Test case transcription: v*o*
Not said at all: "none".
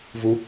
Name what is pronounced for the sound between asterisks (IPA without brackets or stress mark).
u